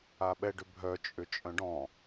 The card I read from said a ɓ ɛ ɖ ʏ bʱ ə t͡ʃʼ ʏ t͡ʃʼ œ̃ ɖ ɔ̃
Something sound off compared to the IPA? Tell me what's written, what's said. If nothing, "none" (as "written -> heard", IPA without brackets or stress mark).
ə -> œ